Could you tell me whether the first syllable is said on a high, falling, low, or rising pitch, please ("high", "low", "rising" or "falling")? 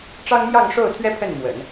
high